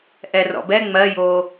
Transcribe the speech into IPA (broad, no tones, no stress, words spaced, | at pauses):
ʔɛrɔ̰bɛ ŋ͡mɜjo